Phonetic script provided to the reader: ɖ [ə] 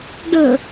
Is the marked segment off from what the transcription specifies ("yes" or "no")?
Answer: no